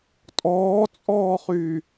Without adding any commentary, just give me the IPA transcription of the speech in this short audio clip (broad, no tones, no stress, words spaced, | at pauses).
tʼɔːt͡sʼɔːχyː